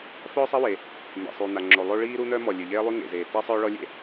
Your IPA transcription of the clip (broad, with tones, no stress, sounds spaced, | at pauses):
f œː˥ sˤ ɛ˥ w e˩ | m ḛ˩ sˤ y˩ n̪ a˩ ŋ͡ǁ o˩ lˠ o˥ ɭ iː˥ ɾ u˥ n̪ œ˥ m ɔ˩ lʲ ø˩ ʎ eː˥ lˠ y˥ ŋ ḛ˩ z eː˩ t e˥ sˤ œː˥ ɭ ɔ˥ lʲ ḛ˥